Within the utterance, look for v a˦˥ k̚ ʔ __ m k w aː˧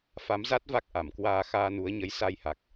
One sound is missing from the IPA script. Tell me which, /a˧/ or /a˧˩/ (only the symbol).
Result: a˧˩